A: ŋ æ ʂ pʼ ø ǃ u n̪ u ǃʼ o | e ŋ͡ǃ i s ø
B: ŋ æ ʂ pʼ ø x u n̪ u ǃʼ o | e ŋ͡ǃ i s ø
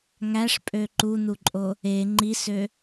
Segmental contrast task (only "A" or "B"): A